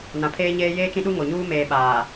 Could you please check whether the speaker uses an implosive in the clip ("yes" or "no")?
yes